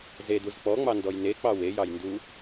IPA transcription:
z e d u z k͡p ɔ ŋ͡m ɑ n d ɔ j n e k͡p ɑ w e j ɑ j n d u

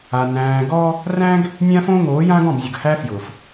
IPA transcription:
a˨ n æ̃ː˨ ɡ ɔ˦ | r æ̃˦ ɡ | nʲ ã˦ f õː˦ ŋ oː˨˦ j ã˦ ɡ ɔ̃˦˨ b zʲ ʊ˨ ɡ h æ˦ f j ʊ˨ f

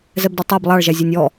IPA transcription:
z ɛ b d ɔ tˤ æ b lˠ ɑ ɭ ʒ æ zʲ ɔ nʲ ɔ

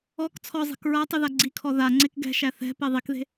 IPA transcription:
ɔ k t͡sʰ ɔ zˤ e̤ k ɹ a tˤ ʉ ð a ɡ͡ǀ i kʰ ɔ ð a ŋ͡ǀ e k ɡ ɛ̤ ʃ æ θ ɛ̤ p e ðˤ i k ð e̤

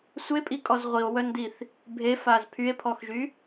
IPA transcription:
sʷ e pʼ i kʼ ɔ z ʁʷ i o̯ w œ n d i θ | bʱ e f a z pʰ y e̯ pʰ ɔ x ʒ y

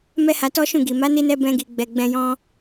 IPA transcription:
m ɛ˦ h a˧ t ɔ˦ ʃ ũ˦˨ ɡ i˨ m a˨˦ n i˧ n ɛ˧ b ɛ̃˧ ɡ i˨ ɡ͡b ɛ˨ ɡ͡b ɛ̃˨ j ɔ̃˧

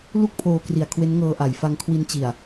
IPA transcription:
l u˥˩ k̚ pʰ oː˧ k r i˨˩ a̯ kʰ w e˦˥ n ŋ ɤː˧ ʔ a˩˦ j f a˧ ŋ kʰ w i˧ n t͡ɕ i˨˩ a̯

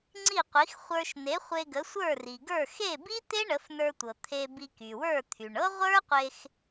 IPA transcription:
ŋ͡ǀ i˥˩ qʷ i˩˥ x χʷ ə˞˧ ʃ n e˩˥ χʷ e˧ ɡ ə˩˥ sʷ ə˞˥˩ r i˩ ɡ ə˞˥˩ x e˥˩ b i˥ t̪ e˥ ɳ ə˩˥ f n ə˞˧ tʷ ɤ˩ t̪ʰ e˧ b i˧ k y˩ w ə˞˥˩ t̪ʰ y˩ ɳ ɤ˥ ʁʷ ə˞˥ qʷ e˧ x

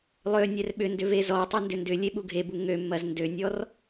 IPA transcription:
lˠ ø nʲ ɛ r ɓ ʏ n d ʏ v e z ɔ tˤ ɐ n d ʏ n d ʏ lʲ e ɓ u ɡʱ e b u ŋ ø mː ɐ z n d ø nʲ ɔ r

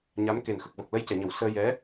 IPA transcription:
ɲ a˧˥ m k e˨˩ n x ə˨˩ k̚ v ə˨˩ k̚ l ə˧ j c ɛ˨˩˨ ɲ ə˨˩˨ w s əː˧ j ɛ˧˥

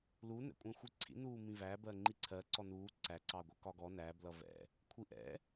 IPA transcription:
l u n ɛ̰ kʷʼ ɛ̃ xʷ i ǀʰ ḭ n uː m ĩ v æ b ɜ ŋ͡ǃ i ǀʰ ɜ ǀ ɔ n uː ǀ æ ǀ ɑ ɡʷ ɛ k ɒ ɡ ɔ n æ b l ʌ v ɛ̰ | kʷʰ i ʔ ɛ̰

